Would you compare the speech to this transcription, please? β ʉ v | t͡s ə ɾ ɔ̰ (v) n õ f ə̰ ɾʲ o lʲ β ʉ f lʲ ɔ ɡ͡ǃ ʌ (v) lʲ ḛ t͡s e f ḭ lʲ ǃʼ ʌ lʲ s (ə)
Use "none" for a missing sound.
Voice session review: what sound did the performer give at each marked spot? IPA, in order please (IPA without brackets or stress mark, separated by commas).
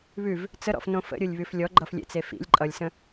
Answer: f, f, ə̃